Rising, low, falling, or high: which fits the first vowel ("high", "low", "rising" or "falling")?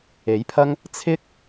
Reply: rising